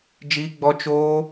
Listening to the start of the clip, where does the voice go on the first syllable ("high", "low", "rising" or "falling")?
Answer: high